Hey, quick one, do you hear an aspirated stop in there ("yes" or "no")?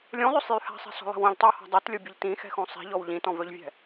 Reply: no